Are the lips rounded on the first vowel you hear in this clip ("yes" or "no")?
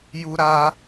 yes